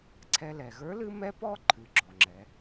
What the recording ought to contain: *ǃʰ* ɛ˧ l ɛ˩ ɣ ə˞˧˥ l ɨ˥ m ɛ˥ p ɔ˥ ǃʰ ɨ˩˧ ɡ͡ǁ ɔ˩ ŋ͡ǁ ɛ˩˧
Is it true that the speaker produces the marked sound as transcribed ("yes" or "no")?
no